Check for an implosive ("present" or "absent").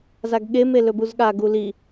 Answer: present